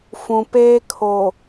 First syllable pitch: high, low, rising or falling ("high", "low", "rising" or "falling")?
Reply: low